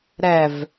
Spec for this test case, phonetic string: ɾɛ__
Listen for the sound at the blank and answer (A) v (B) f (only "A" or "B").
A